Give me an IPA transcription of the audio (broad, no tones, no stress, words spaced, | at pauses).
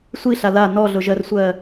sʷiɬa la nɔɮʊʒɜrsʷɜ